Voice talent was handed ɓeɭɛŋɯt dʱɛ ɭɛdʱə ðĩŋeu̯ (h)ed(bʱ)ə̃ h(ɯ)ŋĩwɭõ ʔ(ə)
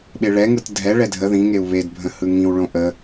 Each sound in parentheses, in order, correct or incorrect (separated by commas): incorrect, correct, correct, correct